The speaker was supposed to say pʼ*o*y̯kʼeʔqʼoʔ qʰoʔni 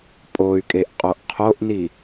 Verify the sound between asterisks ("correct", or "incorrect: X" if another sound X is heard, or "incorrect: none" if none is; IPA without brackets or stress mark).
correct